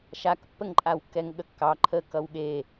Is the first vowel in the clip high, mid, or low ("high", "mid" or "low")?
low